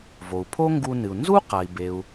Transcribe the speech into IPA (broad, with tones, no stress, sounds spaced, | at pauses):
v o˩ u̯ pʰ o˥ ŋ ɡ u˧ n ɨ˩ u̯ n z u˥ q a˩ i̯ b e˩ u̯